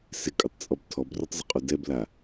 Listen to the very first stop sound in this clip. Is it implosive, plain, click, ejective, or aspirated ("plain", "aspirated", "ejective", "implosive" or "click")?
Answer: ejective